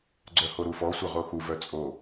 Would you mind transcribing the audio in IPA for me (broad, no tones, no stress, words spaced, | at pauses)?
ɡ͡ǀœhoɾufɔ sʷœʁoxu vœt͡sʼo